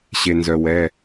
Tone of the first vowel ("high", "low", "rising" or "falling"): low